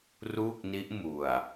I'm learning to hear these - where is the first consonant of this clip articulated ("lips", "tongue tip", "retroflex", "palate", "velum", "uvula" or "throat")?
tongue tip